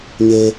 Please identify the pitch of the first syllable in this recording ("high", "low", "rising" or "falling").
high